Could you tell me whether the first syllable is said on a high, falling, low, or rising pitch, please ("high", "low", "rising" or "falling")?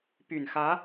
low